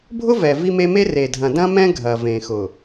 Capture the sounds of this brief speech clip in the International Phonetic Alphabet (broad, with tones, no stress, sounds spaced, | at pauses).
bʱ ʊ˦ v ɛ˨ v i˦ m e˦ m e˦ r e˨ dʱ ɐ̃˨ d ɐ̃˦ m ɛ̃˦ ɡʱ ɐ˨ v ẽ˨ x ʊ˨